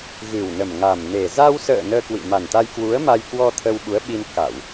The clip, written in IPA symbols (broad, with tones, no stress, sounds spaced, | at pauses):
ɣ ɨ˨˩ w n ə˨˩ m ŋ a˨˩ m n e˨˩ z a˧ w s ə̰ː˧˨ n əː˧ k w ḭ˧˨ m a˨˩ n t̪ a˧ j k w u˨˦ ə̯ m a˧ j k w ɔ˧ t̪ʰ ə˧ w ɓ u˨˦ ə̯ ɓ i˧ n k a˧˩˨ w